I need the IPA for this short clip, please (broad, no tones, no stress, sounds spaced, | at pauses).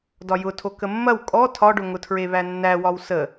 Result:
d ɒ j ʊ tʰ o k ə mː ɐ w kʼ ɔ tʰ ɒ ɖ ʊ ŋ ʊ tʰ ɹ e β æ nː æ w ɒ w s ə